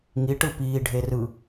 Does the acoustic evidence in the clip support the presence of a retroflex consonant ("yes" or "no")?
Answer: yes